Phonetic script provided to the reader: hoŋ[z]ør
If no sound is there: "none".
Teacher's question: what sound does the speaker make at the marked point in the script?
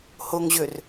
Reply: ʑ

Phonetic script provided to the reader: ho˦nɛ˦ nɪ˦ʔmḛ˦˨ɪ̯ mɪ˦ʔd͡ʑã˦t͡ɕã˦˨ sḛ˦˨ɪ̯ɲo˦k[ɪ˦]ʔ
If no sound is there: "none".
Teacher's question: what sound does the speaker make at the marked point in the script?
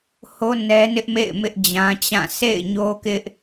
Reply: ɪ˦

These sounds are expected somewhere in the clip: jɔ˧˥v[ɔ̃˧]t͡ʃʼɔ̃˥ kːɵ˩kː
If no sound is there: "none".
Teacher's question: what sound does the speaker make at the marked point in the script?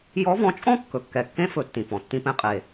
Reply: ɔ̃˧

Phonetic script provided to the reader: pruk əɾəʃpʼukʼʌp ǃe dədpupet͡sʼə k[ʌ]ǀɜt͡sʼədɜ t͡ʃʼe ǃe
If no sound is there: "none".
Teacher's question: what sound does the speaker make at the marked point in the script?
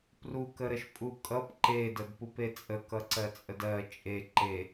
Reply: ʌ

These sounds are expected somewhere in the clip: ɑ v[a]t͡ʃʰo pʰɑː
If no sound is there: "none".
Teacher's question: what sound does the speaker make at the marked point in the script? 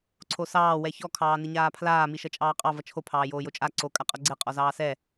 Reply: ʌ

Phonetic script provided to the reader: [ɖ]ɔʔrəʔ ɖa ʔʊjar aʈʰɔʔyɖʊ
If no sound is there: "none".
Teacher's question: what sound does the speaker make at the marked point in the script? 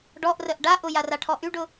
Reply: ɖ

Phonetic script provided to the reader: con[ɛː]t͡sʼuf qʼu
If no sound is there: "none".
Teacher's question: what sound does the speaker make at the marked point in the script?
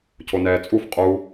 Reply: ɛː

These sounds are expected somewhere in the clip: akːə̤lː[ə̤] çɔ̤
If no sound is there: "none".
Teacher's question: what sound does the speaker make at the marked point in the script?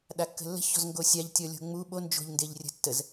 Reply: ə̤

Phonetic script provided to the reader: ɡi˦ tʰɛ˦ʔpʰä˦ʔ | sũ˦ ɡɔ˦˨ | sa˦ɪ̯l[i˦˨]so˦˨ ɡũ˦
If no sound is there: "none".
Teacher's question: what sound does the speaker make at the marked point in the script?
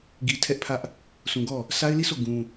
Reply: i˦˨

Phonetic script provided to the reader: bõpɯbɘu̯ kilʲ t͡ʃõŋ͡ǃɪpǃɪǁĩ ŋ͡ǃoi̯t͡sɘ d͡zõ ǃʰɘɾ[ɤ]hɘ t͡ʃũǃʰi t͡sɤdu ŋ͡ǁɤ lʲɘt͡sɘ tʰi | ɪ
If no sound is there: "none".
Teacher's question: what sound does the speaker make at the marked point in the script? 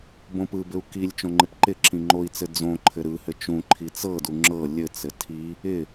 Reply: ɯ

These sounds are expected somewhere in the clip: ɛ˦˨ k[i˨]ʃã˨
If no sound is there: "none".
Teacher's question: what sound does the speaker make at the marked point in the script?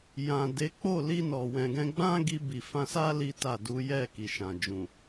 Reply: i˨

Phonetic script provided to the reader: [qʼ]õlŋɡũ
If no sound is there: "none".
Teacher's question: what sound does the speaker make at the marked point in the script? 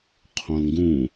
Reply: qʰ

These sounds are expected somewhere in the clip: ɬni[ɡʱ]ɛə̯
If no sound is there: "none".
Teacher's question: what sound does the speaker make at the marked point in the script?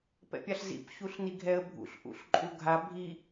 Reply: ɡʱ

